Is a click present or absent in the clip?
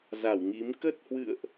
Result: absent